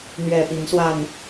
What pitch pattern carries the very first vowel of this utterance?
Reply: low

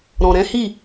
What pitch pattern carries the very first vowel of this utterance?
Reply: low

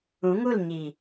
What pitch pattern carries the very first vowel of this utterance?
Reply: rising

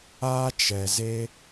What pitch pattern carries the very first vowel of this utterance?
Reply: high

